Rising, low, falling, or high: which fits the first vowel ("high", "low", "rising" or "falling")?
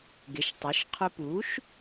rising